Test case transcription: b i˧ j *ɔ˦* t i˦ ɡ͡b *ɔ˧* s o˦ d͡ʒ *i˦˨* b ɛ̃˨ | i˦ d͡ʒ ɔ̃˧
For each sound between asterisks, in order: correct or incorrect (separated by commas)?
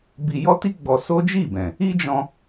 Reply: correct, correct, correct